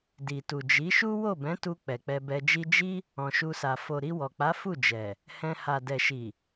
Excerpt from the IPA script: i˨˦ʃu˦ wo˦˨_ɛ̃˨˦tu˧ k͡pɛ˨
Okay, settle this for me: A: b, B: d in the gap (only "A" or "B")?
A